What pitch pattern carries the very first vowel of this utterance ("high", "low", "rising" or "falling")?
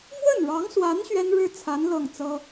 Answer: falling